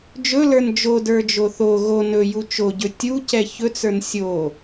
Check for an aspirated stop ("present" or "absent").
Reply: absent